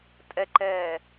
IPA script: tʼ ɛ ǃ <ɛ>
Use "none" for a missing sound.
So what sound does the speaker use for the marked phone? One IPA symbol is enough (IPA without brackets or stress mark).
ɛː